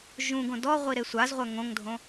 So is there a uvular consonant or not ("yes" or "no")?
yes